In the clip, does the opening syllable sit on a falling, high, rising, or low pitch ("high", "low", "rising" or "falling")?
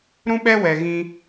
high